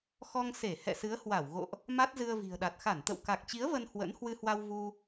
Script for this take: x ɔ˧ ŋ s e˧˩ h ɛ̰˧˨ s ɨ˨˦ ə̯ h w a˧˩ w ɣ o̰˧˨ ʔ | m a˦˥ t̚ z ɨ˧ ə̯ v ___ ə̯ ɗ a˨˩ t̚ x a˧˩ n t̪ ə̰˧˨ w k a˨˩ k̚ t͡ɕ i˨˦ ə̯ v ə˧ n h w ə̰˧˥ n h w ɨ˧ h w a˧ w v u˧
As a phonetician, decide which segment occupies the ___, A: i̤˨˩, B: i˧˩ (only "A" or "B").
A